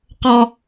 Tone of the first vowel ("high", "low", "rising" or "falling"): high